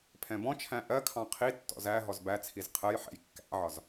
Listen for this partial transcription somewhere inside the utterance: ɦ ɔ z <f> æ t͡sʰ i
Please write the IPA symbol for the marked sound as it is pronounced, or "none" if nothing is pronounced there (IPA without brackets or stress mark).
b